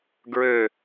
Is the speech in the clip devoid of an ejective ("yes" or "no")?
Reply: yes